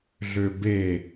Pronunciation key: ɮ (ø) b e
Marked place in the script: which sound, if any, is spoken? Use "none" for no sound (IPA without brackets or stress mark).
ø